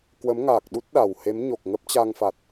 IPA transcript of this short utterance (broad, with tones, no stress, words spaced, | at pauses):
kwə˨˦m ŋaː˨˩k̚ɗu˦˥t̚ ɗa˨˩whe˨˦mɲo˨˩k̚ ŋə˦˥p̚t͡ɕa˧ŋfa˨˩t̚